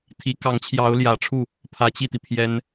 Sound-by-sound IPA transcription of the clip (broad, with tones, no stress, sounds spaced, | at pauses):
t̪ʰ i˧˥ k ɑ˧˥ ŋ t͡ɕʰ j ɑ˧˥ ʊ̯ l j ä˨˩ ʈ͡ʂʰ u˥˩ | pʰ ä˧˥ t͡ɕ i˥˩ t̪ i˩ pʰ j ɛ˥ n